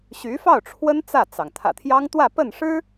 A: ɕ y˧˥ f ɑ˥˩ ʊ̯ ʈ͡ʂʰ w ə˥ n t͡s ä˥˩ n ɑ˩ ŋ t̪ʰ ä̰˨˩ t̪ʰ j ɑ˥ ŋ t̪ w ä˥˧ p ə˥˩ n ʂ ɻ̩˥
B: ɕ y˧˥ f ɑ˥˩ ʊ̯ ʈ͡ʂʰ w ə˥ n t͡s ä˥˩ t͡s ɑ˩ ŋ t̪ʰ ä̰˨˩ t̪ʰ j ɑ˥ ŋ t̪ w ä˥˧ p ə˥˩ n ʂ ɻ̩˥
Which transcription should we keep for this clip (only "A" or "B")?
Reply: B